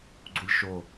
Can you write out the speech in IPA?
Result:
ɡ͡ǀ u lʲ ʃ o

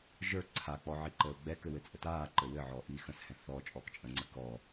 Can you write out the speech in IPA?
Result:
ʒ ə˞ ǀʰ a k͡p ɔ ʕ i ǃ əː ʊ̯ ɡ͡b ɛ k ɘ w ɘ t͡sʼ ə t aː ǃ ɘ w ɘ ʕ ɔ ʔ iː x ə̃ s h ɛ̃ θ ɔ t͡ʃʼ ɔ k t͡ʃʼ ə̃ ŋ͡ǀ ə k ɔ

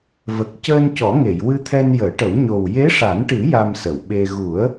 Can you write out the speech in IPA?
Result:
v ə˨˩ k̚ c əː˧ n c ɔ˨˩˦ ŋ e˨˩˨ j w ɨ˧ t̪ʰ ɛ˧ n j əː˨˩˦ ʈ ə˨˩˦ w ɲ o˨˩ w j e˧˥ ʂ a˨˩˦ n ʈ ɨ˨˩˦ j a˧ m s ə˨˩˨ w ɓ e˧ ɣ u˨˩˦ ə̯

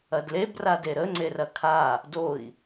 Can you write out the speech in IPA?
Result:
ɐ d l e b r a d e ɾ ə ŋ͡ǀ e r ɐ kʰ a | d o i̯

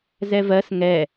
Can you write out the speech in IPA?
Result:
z ɛ v ɜ s ŋ ɛ

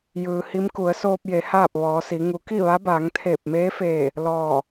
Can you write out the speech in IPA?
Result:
j ɯː˩ h i˧˥ m k u˩˧ ə̯ s oː˧ p̚ j e˩˧ h aː˥˨ p̚ ʋ ɔː˩˧ s i˩˧ ŋ u˩˧ k i˥˨ ʋ a˧˥ b aː˩˧ ŋ t̪ʰ eː˧˩ p̚ m eː˧˥ f eː˧˩ | l ɔː˧˩

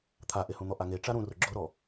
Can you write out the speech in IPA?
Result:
t̪ʰ a ʔ e h ũ n̪ ɔ ʔ a ŋ e ʈ͡ʂ a ɾ ũ r ʊ ɡ͡ǁ ʊ ɾ ɔ

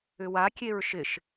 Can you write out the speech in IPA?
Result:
ʏ w a kʲ e ɹ ʃ ɪ ʃ

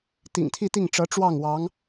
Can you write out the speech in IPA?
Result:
t̪ ḭ˨˩ ŋ t̪ʰ i˥˧ t̪ i˥˩ ŋ ʈ͡ʂ ɤ˧˥ ʈ͡ʂ w ɑ˥˩ ŋ w ɑ˧˥ ŋ

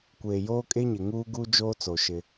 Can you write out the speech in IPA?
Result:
kʷ eː˨ j oː˦ kʼ e˦ ɲ ɪ˨ ŋ uː˦ ɡ u˦ d͡ʒ oː˦ t͡s o˨ ʃ ɪ˦

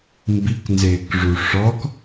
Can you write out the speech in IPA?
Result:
m b i k n z ɪː k ʐ u ʂ ɔ k

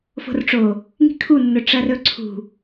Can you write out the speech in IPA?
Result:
f o̤ r ʈ͡ʂ o | ŋ i̤ kʰ u nː ɵ ʈ͡ʂ ɐ r ɵ ǀʰ ṳ

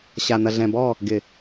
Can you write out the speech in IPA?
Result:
ɕ a˨ n ɐ˨ ɮ ɛ̃˨ b ɔ˦˨ | ɡ ɪ˨

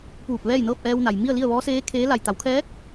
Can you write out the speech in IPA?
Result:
p uː˧˩ p̚ ʋ ɛː˥˨ j n ɤː˥˨ p̚ ʔ ɛː˧ w n a˩ j m i˥˨ ə̯ l i˥˨ ə̯ ʋ ɔː˧˥ s eː˧˥ kʰ eː˧˥ l a˧˩ j t̪ a˩˧ w kʰ ɛː˧˥ k̚

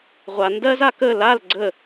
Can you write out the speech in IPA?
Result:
ʁʷ a n d ɜ z a k ə l a l ɡ͡ǀ ə

